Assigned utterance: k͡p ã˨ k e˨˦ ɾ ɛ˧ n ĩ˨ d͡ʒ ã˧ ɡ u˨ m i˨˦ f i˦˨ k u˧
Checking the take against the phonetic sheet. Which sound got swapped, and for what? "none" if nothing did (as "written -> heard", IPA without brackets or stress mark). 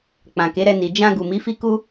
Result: ĩ˨ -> i˨